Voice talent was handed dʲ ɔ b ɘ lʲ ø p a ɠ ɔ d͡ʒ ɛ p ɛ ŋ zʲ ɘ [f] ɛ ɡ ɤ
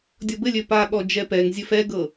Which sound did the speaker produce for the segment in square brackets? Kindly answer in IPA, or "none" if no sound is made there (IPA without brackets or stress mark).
f